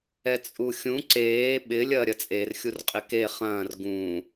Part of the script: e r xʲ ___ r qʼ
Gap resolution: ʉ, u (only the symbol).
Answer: u